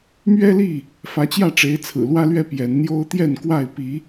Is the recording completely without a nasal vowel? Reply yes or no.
yes